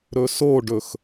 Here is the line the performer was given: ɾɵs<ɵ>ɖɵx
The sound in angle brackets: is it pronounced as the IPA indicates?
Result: no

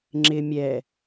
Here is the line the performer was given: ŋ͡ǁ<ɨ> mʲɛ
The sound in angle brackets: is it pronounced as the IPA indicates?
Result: no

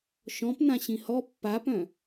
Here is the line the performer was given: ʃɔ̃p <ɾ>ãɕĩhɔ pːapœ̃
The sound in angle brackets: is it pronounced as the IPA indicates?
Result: no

